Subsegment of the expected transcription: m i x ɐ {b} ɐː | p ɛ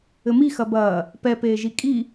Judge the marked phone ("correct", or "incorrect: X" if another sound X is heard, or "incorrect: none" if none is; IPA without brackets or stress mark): correct